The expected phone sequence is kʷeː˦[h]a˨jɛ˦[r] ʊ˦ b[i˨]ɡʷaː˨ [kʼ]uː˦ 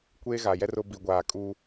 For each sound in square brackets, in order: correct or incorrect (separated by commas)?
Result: incorrect, correct, correct, correct